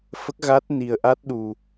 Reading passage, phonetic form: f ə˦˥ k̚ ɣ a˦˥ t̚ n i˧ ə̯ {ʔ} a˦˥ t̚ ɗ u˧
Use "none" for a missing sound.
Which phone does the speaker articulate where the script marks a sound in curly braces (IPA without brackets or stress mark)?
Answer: ʔ